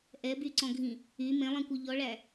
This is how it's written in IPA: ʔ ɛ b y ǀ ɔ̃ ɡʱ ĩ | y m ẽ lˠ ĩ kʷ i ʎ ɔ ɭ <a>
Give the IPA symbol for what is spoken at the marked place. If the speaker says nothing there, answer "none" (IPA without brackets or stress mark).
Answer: æ